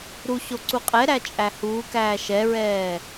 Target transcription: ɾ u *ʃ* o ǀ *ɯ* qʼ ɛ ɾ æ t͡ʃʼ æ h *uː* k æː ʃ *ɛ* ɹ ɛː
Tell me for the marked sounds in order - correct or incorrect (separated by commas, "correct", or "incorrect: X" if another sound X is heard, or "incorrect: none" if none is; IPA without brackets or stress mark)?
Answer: incorrect: ɕ, incorrect: u, correct, correct